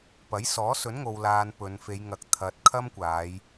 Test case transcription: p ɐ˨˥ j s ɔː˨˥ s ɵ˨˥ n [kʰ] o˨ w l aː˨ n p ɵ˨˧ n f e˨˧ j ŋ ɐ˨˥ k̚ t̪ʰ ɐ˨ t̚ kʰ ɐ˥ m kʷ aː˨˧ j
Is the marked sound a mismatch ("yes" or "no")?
yes